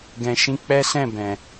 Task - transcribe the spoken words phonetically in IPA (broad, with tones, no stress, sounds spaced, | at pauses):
ɡ ɛ̃˧ ʃ ĩ˦ k͡p ɛ˦ s ɛ̃˦˨ b ɛ̃˨